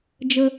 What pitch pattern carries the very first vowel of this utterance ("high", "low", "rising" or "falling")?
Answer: high